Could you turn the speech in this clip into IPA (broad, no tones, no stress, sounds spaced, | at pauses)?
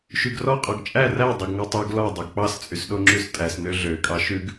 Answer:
ʃ y ɡ r ɔ qʼ ɔ ɡ t͡ʃʼ æ r æ dˤ o ɡ ŋ ɔ tˤ ʉ ɡ l ɔ dˤ o ɡ k͡p ɑ s t͡sʼ y s ɗ o ŋ͡ǁ ʉ s tʼ æ s n ø ɮ ø kʼ ɑ ʃ ʉ ɡ